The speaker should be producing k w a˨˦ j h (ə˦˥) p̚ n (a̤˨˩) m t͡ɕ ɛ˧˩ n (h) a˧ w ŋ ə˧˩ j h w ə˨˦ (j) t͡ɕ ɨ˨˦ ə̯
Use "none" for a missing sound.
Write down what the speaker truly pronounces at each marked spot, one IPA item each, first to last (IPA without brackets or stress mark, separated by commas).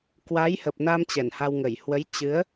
ə˨˩, a˧, h, j